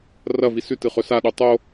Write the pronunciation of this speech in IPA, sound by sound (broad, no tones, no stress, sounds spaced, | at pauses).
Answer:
r ɐ v i s ʉ t ɨ χ ɵ s a ɗ u tˤ o